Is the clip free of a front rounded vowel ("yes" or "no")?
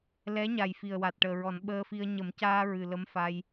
yes